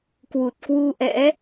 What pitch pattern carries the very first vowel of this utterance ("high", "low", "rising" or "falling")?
low